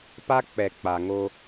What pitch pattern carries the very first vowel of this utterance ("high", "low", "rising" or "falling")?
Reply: high